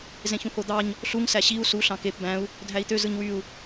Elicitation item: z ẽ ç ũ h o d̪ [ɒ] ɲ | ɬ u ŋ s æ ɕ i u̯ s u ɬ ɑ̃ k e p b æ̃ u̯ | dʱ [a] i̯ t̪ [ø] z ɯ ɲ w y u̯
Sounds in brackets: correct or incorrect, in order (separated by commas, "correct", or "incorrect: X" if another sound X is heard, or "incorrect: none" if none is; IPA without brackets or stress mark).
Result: incorrect: ɑ, incorrect: æ, correct